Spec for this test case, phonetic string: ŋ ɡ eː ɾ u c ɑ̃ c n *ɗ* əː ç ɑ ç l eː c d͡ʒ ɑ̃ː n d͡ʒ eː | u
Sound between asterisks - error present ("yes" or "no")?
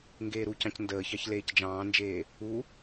yes